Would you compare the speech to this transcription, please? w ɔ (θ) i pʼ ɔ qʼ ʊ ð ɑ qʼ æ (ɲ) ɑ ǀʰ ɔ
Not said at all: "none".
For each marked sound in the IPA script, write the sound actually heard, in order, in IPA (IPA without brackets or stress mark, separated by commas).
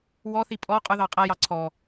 θ, j